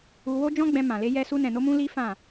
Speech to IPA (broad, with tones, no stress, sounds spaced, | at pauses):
u˧ w o˦ d͡ʒ ɔ̃˦ ɡ͡b ɛ̃˧ m ã˨ l e˧ j ɛ˧ s u˧ n ɛ̃˨ n o˧ m ũ˧ l i˦ f ã˦˨